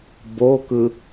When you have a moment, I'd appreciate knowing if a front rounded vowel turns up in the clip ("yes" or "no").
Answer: no